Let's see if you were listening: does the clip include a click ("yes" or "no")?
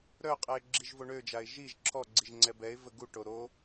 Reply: yes